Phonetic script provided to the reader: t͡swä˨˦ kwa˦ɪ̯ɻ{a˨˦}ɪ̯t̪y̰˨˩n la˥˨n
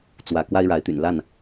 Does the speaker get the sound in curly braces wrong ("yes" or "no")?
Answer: no